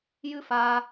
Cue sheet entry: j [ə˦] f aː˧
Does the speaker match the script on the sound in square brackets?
no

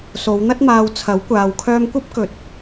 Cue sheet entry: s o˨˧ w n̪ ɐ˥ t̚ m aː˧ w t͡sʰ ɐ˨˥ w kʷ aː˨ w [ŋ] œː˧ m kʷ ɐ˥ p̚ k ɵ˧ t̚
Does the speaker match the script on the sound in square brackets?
no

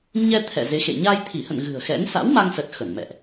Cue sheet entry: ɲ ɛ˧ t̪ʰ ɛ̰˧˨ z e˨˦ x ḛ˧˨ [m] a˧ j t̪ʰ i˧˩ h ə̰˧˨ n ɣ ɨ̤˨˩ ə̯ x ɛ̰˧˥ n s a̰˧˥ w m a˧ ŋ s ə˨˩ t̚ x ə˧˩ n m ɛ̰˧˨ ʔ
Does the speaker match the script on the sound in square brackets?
no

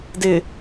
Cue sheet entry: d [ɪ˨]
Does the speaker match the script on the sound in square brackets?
yes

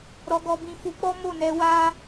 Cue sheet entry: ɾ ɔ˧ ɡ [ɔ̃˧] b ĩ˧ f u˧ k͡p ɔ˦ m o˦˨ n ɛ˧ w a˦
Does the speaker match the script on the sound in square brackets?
no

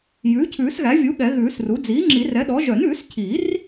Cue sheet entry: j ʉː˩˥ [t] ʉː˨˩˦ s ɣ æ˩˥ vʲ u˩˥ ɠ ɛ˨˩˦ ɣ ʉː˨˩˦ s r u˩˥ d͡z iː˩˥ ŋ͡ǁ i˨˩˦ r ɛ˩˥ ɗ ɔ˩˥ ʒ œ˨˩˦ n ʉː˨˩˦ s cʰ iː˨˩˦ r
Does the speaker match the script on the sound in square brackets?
no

